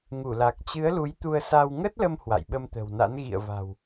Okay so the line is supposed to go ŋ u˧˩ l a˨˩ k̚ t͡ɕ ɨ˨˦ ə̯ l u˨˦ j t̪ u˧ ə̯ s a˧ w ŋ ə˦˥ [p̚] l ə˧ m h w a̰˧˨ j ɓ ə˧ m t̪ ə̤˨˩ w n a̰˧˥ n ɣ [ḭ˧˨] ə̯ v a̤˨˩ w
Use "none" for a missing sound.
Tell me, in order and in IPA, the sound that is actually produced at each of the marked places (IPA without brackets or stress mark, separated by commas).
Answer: t̚, ḭ˧˨